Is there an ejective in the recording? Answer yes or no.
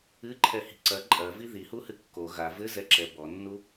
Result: yes